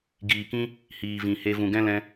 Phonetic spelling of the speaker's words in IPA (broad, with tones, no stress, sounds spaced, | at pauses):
ɡ iː˨ k ĩ˦ | h iː˨ v ĩ˨ h e˧ v ũ˨ ɡ ɛ̃˦ l ɛ̃˧